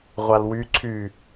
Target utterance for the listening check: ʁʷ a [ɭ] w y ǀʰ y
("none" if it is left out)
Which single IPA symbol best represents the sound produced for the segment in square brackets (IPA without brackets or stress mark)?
l